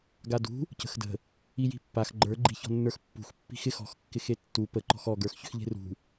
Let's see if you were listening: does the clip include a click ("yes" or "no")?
yes